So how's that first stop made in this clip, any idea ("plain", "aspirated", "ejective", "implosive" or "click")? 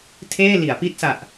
aspirated